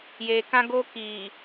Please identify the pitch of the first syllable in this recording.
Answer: low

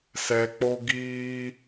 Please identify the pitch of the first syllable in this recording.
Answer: low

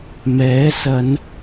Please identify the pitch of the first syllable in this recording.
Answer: rising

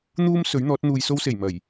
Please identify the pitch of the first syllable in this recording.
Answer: high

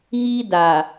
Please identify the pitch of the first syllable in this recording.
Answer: high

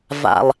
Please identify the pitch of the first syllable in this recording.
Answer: low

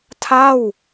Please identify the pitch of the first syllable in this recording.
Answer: falling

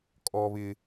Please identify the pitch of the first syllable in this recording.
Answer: high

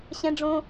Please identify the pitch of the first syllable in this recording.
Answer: high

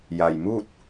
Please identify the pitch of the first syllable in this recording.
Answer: low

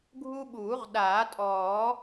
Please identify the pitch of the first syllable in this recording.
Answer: high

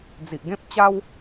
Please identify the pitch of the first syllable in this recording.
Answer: low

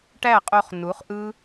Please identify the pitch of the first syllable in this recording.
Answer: falling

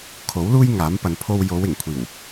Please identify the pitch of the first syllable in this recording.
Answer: rising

